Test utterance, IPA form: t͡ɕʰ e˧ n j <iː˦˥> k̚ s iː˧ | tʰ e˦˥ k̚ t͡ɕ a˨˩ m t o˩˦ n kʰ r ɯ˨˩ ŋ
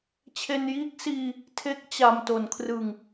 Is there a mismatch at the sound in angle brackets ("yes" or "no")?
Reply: no